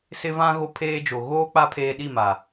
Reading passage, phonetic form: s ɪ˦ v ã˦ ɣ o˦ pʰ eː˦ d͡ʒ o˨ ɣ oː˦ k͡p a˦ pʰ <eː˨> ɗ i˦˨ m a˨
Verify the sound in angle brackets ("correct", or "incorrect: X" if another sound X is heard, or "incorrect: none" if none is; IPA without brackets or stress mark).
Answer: incorrect: eː˦